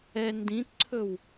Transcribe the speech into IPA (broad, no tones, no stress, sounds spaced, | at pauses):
ɛ n d ĩ t ǀʰ ɵ w